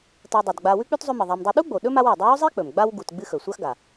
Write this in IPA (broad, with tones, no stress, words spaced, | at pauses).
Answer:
tɐ˨dˤɵ˩dɡ͡ba˨ wʉ˥k͡pʉ˥tzˤɵ˦mɨ˩ ðˤa˨m dˤɨ˨ɗu˥ɡ͡bo˩ ɗɵ˥ma˦wa˩ dˤɵ˦wɵ˥zˤe˥k͡pɵ˩m ɡ͡ba˥wɡu˨tɡ͡bɨ˦ xɵ˩sʷa˦xɡa˩